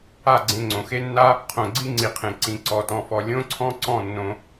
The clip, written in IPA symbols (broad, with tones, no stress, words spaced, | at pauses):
a˦˨ ɡ͡ǀẽ˧ŋ͡ǀõ˨ xe˦nːa˦ | qʰõ˨ɡ͡ǀi˦ŋ͡ǀi˨qʰẽ˨ ǀĩ˨ǀɔ˨tɔ̃˨fɔ˨ lʲõ˦ǀʰɔ̃˦ǀɔ̃˦˨ nːõ˧